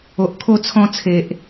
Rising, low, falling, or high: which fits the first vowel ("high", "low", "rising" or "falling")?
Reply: low